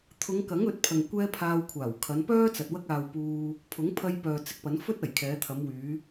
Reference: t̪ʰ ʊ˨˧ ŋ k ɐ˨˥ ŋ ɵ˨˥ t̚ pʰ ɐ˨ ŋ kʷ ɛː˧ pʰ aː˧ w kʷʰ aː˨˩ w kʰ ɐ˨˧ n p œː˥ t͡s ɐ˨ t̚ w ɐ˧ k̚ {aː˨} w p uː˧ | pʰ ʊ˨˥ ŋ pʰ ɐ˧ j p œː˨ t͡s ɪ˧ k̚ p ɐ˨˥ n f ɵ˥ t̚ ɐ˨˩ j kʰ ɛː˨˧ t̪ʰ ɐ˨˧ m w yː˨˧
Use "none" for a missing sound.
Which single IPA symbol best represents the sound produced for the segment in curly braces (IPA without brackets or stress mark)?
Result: aː˨